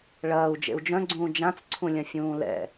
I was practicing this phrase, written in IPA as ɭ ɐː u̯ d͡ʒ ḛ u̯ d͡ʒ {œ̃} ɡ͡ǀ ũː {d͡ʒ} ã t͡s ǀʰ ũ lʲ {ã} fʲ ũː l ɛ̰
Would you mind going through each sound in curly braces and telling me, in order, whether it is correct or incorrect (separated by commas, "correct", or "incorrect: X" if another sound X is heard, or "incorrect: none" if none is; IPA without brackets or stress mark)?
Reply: correct, correct, incorrect: ɐ̃